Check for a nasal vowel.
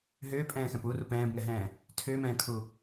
present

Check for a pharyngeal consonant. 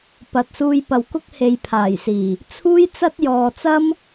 absent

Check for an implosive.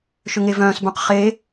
absent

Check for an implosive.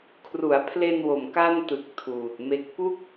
absent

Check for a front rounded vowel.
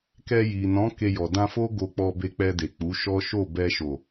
absent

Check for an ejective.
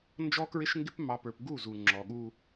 absent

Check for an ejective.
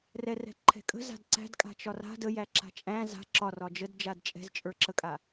present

